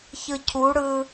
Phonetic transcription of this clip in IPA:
ç ɯ cʰ u ɽ ɯ

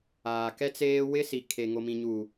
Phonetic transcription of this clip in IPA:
aː˨ k ɛ˦ t͡s eː˦ w ɪ˦ s i˨ kʰ e˨ ŋ o˨ m ĩ˨ ɲ uː˨

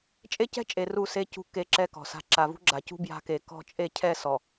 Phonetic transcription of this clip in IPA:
t͡ʃʼ e˦ c ɛ̤˦ t͡ʃʼ e˨ r u˦˨ s e˦ c ṳ˦ k e˦˨ ǁ ɛ˦ k ɔ̤˨ s a̤˦ ǁ a˨ v ṳ˦ ɡ͡ǁ a˨ c ṳ˦ b j a̤˦ k e˨ k ɔ̤˦˨ t͡ʃʼ e˦˨ cʰ ɛ˦˨ s ɔ˨

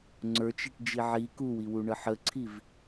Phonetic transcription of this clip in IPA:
ŋ͡ǀ ə˞ t͡ʃ i ʈ d͡ʒ i ʕ i k u w i w u ɳ ə ħ ə ǀʰ i v

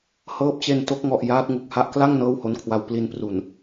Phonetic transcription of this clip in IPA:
h ɤː˦˥ p̚ t͡ɕ e˧ n t o˦˥ k̚ ŋ ɔ˨˩ ʔ j aː˦˥ t̚ ŋ u˨˩ k̚ h a˦˥ ʔ k l a˥˩ ŋ n ɤː˥˩ w h o˦˥ n kʰ w a˧ w p l i˧ n p r u˨˩ n

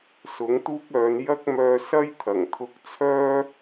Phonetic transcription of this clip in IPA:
s ʊ˨˥ ŋ t̪ uː˥ k̚ œː˨˧ n j ɐ˥ k̚ m œː˧ s ɐ˥ j t̪ʰ ɐ˨˩ ŋ t̪ʰ ʊ˧ k̚ t͡sʰ œː˥

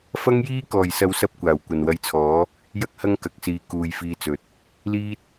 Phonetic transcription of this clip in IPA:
f ɐ˥ ŋ j iː˥ k ɔː˨˩ j s ɐ˨˧ w s ɐ˥ p̚ kʷ aː˨˩ w kʷ ɐ˨ n w ɐ˧ j t͡sʰ ɔː˨˥ | j ɐ˥ k̚ h ɐ˥ ŋ k ɐ˨ k̚ s iː˨ k uː˧ j f iː˧ t͡s ɵ˨˥ t̚ | l iː˥ t̚

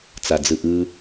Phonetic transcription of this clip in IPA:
t͡s a d͡z ɯ ʔ ɯ

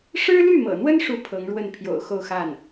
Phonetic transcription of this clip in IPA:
ʂ ɻ̩˥ l y˥˩ m ɤ̰˨˩ n̪ w ə˥ n ʂ u˥˩ pʰ ɤ˧˥ ŋ ɻ w ə˥˩ n pʰ j o̰˨˩ ʊ̯ x o˥˧ ʊ̯ x a˥˩ n

